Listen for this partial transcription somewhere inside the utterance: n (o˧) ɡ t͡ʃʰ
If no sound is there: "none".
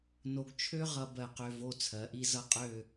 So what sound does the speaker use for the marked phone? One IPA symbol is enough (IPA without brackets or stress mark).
o˧